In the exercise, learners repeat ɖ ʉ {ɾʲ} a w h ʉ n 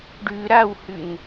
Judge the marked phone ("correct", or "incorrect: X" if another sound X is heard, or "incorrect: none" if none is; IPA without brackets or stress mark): incorrect: ɾ